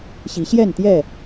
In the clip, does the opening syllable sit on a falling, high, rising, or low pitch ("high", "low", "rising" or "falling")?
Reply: rising